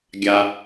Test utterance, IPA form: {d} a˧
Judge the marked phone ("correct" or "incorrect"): incorrect